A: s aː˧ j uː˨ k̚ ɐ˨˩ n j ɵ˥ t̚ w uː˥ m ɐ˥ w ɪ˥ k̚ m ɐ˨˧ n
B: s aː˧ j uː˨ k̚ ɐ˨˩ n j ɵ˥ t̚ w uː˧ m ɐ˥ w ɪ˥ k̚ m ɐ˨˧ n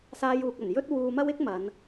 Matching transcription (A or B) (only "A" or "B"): B